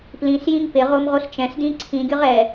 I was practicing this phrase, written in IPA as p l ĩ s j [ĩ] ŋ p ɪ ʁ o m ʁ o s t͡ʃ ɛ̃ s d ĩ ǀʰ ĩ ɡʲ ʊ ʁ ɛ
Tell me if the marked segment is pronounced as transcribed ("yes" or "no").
yes